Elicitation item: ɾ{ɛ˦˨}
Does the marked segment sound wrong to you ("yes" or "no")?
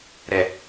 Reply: yes